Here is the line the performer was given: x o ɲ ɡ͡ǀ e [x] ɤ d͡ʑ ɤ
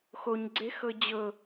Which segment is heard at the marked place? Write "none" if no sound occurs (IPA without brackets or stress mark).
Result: x